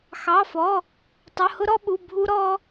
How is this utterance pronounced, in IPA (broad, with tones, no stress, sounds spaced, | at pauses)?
x ɑ˧˥˧ f ɔ˧˥˧ | tˤ ʊ˧˥˧ h ʊ˥ ɾ ɔ˥ ɓ u˧˥˧ bʱ u˥ ɾ ɔ˥